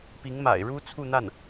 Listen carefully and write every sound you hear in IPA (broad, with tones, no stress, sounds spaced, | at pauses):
p i˧˥ ŋ m a̰˨˩ ɪ̯ ɻ u˥ t͡sʰ u˥˧ n̪ a˥˩ n